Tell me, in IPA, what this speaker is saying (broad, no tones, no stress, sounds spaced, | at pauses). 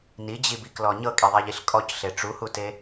n i d͡ʑ i b i k l ɔ ɲ ɤ kʼ i ðˤ e ʎ i ɬ kʼ ɔ c ɬ e ʈ͡ʂ u h u t e